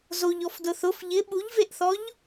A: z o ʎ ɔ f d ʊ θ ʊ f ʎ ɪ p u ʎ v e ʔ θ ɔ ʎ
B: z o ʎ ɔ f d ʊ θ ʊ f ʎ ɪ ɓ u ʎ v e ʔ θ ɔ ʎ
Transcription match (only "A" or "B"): B